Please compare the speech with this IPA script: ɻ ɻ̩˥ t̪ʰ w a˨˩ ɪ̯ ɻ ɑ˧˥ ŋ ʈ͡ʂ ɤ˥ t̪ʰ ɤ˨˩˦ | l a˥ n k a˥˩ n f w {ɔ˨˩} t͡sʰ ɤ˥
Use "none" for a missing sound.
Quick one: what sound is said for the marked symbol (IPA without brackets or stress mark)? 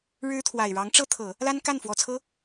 ɔ˨˩